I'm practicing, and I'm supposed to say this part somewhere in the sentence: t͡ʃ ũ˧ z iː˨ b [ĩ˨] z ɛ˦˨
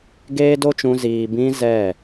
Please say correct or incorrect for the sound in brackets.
incorrect